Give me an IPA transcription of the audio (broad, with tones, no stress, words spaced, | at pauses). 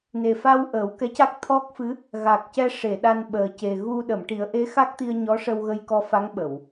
ne˨˩fa˧w ʔəː˨˩˦wkɛ˧˥ca˦˥k̚t̪ʰɔ˦˥k̚ fɨ˧˥ | ɣa˨˩k̚cɛ˧ ʂe˨˩˨ɗa˧nɓəː˨˩ ce˨˩ɣu˧ ɗə˨˩˨mʈi˨˩˦ə̯ ʔe˧˥xa˦˥k̚t̪i˧ə̯ ɲɔ˧˥ʂə˧w ɣə˧jkɔ˧fa˧˥ŋ ɓə˨˩˨w